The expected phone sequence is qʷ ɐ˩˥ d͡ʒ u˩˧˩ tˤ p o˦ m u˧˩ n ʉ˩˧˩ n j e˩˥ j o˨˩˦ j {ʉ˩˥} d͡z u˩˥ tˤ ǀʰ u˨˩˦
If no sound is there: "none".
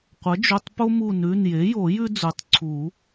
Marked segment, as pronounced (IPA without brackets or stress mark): ʉ˦